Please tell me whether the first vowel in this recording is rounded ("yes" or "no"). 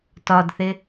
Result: yes